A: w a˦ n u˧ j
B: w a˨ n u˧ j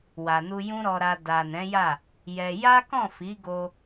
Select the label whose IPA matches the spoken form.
B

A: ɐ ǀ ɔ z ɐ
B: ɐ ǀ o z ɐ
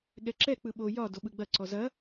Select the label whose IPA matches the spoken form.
A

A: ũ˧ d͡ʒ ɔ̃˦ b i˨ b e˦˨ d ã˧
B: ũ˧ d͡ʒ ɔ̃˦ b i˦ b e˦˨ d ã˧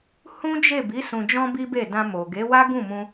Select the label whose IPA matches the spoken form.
B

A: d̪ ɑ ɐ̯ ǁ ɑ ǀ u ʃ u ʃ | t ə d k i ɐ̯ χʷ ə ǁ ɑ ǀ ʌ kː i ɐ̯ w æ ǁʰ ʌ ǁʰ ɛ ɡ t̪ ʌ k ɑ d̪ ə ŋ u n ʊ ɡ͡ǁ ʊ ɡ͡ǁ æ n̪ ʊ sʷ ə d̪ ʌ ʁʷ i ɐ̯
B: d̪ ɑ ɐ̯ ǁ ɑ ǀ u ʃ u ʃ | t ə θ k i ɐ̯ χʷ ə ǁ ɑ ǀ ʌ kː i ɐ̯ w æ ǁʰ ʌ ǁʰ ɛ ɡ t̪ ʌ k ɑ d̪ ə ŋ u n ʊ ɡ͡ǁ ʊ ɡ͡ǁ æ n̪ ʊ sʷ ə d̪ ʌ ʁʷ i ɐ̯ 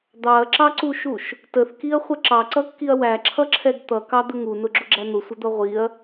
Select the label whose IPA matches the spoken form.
B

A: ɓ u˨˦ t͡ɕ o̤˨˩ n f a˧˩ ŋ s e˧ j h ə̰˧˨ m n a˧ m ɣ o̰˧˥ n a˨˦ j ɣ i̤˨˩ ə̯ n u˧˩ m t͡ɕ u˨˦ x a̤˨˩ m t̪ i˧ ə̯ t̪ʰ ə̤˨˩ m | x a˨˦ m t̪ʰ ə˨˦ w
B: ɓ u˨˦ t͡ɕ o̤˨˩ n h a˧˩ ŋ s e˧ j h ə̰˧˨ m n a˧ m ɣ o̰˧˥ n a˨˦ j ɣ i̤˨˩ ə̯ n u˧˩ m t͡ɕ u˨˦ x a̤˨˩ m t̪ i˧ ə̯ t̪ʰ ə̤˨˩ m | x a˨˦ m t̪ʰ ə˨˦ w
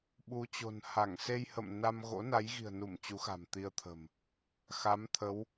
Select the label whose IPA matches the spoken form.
B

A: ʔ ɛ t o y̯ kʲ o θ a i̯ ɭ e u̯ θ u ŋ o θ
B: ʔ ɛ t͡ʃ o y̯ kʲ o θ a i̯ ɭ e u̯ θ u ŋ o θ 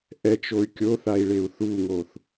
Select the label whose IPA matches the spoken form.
B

